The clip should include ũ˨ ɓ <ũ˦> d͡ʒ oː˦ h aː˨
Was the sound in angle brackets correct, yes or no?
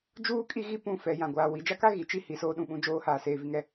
yes